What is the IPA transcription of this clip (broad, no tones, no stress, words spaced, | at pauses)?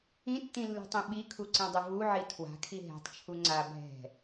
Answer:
ĩtːĩlːṳtˤĩ ɓikʰuǀĩdˤʊ vuʕi tʰwa̤kʰi ɦɛ̤tˤt͡ʃʰu ŋ͡ǀa bʱɛ̤